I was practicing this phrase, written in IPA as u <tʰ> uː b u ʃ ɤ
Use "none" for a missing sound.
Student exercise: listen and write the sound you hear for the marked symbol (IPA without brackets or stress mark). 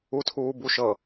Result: tʰ